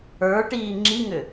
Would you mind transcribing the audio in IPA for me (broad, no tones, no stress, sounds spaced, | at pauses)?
ə˞ ʈ iː ŋ͡ǁ i ŋ ʏ